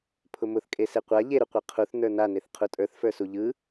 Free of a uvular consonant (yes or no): no